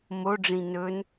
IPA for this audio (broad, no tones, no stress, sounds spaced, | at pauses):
m o ɖ͡ʐ ĩ n ɵ n